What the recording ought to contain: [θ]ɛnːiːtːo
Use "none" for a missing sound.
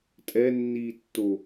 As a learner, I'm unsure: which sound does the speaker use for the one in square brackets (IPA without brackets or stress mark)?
tʼ